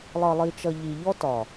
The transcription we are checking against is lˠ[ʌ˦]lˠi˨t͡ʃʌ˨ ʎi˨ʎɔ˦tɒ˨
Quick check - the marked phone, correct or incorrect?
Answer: incorrect